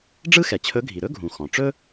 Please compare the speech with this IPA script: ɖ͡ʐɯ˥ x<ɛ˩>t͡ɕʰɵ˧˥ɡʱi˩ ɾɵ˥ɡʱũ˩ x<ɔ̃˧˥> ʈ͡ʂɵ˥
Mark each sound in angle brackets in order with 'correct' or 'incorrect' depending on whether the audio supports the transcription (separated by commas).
correct, incorrect